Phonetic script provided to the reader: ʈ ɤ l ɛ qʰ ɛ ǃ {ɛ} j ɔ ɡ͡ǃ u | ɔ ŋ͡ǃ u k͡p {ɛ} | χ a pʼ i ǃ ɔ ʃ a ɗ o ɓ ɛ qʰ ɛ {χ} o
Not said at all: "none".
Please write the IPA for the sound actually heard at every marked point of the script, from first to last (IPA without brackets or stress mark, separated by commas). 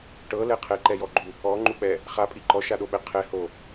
ɛ, ɛ, h